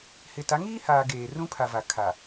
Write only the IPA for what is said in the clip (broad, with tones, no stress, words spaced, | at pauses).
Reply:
hɪ˨ta˨˦ŋiː˦haː˨ ɡeː˨rũ˦ pʰa˨ va˨kʰa˨